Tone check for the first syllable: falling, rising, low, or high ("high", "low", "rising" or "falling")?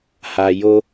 low